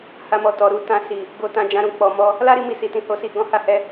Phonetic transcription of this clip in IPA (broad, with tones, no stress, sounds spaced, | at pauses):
h a˧ m ɔ˨ t ɔ˨ ɾ u˧ t ã˧ s i˨ | ɡ o˨ t ã˧ d͡ʒ ã˧ ɾ ũ˨ k͡p ɔ˨ m ɔ˧ | l a˦ ɾ i˧ m i˧ s i˨ t ĩ˧ h o˧ s i˧ ɡ ɔ̃˦ h a˦ h ɛ˦